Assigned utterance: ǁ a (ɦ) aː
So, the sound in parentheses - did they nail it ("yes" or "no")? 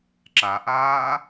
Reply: no